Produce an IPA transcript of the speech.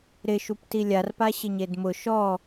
ɾ ɪ ʃ u p t i lʲ a r p a ɕ ɪ ɲ e d m ʊ ʃ ɔ

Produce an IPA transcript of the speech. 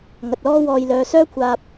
ŋ ɐ˨ t̚ l ɔː˥ w ɔː˧ j l œː˨˧ s œː˥ kʷʰ aː˧ p̚

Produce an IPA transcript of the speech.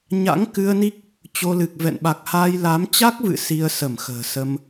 ɲ a̰˧˥ ŋ k ɨ˧ ə̯ n i˦˥ k̚ | t͡ɕ o˧ l ɨ˨˩ k̚ v ɛ̰˧˨ n ɓ a˨˩ k̚ h aː˧ j l aː˨˦ m t͡ɕ a˦˥ k̚ v ɨ̰˧˨ s i˧ ə̯ s ə˧˩ m x ə̤ː˨˩ s ə˧ m

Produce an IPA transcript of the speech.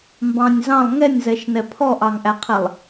m b ɑ̃ nʲ z ɑ̃ lˠ ŋ ɛ nʲ z ɛ ʃ n ɛ pʰ ɔ ʔ ɑ ŋ ʔ æ qʰ ɛ lˠ

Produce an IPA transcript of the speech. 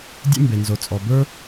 dʲ ḛ˥ m b e˩ n z o˩ t͡sʼ ɔ˩ b ə˞˥

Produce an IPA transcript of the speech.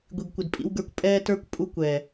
ɡʷ i˨ ɡ kʷ ɪ˨ d pʼ ḭ˦ w ɡ ə˞˦ kʷ pʼ ɛː˦ t ə˞˦ kʷ pʼ u˦ kʷ ɛː˨

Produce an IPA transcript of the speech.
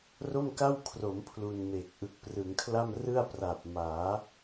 r o˥˩ m k a˥˩ w kʰ r o˩˦ m pʰ l u˧ n m e˨˩ k̚ ʔ ɯ˨˩ k̚ p r ɯ˩˦ ŋ kʰ l a˥˩ m r ɯ˥˩ a̯ p r a˨˩ p̚ m aː˩˦

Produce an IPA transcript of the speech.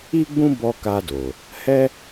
i˦ ɡ͡b ũ˦ b ɔ˧ k a˧ d o˨ | h ɛ˦

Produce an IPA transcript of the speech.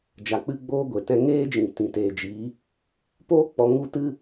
d͡ʒ a˨ k͡p ɨ˧ ɡ͡b oː˧ ɡʷ e˨ t ɛ̃˧ ŋ eː˦ d͡ʒ ĩ˨ t ĩ˨ t eː˨ d͡ʒ iː˨˦ | p oː˦ k͡p ɔ˧ ŋ u˦ t ɨ˦

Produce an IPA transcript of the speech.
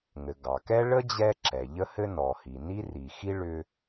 ŋ ɘ˩ ɡ ɑ˩ k ɛ˥ ɭ ə˥ d͡ʑ ɛ˥ ǁ ɛ˩ ʎ ə˥ h ɘ˥ n ɔ˩ h i˩ n i˥ r i˩ x i˥ ɭ ʏ˥

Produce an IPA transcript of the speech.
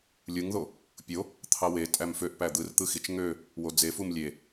lʲ ɯ ŋ ð o | pʲ o | t̪ʰ ɑ w e tʼ æ m f ø ʔ p æ d̪ ɯ r t̪ ɯ x i t͡ʃ ŋ ø | w o d͡z e f u m lʲ e

